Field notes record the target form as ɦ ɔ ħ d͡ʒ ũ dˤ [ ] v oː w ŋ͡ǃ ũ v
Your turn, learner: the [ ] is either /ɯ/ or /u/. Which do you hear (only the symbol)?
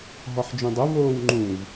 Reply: u